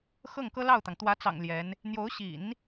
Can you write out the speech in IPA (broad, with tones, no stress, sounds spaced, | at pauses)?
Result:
x ɤ˥˩ ŋ k ɤ˥ l ɑ˥˩ ʊ̯ t̪ ɑ˩ ŋ t̪ w ä˧˥ t͡s ɑ̰˨˩ ŋ l j ɛ˧˥ n | n̪ j o˧˥ ʊ̯ ɕ ḭ˨˩˦ n